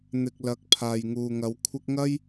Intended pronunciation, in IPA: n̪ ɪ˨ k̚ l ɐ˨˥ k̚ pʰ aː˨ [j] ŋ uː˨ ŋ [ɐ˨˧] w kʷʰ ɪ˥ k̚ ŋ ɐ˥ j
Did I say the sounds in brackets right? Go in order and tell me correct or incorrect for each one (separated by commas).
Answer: correct, correct